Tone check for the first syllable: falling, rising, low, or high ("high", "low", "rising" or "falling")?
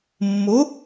rising